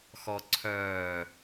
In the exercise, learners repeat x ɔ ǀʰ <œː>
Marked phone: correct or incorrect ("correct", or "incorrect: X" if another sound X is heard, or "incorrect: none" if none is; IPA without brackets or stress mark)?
correct